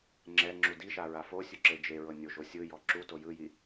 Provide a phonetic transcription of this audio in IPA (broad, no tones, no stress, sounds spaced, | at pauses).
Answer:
ŋ͡ǁ ɛ ŋ͡ǁ u d i ʃ a ɹ a f o sʲ u ǁ e d͡ʒ e ɹ ɤ nʲ o ʒ o sʲ ɯ j ɔ ǁ u t o j ɯ j i